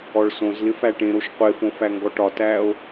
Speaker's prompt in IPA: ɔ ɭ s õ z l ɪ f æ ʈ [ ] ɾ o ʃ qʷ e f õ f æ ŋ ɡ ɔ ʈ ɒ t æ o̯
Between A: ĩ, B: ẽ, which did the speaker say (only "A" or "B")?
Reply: B